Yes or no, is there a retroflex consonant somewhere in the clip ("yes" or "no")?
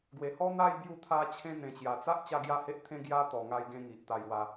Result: no